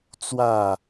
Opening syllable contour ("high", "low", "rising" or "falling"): falling